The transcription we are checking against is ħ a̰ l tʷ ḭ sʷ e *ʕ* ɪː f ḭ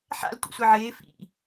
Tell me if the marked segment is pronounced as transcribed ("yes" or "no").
yes